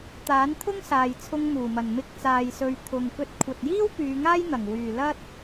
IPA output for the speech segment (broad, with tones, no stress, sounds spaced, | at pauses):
t̪ aː˨˥ n t̪ʰ ʊ˥ ŋ s aː˨ j t͡sʰ ʊ˧ ŋ m uː˨˩ m ɐ˨˩ n m ɪ˧ k̚ t͡s aː˨ j s ɵ˨ ɥ t̪ʰ ʊ˨ ŋ k ɵ˨˥ t̚ kʷʰ ɐ˨ t̚ j iː˥ w p yː˨˧ ŋ aː˥ j n̪ ɐ˨˩ ŋ w yː˨˩ l ɐ˥ t̚